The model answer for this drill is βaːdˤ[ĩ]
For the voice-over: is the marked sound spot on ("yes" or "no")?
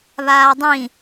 yes